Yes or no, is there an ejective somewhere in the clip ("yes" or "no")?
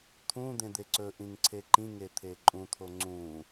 yes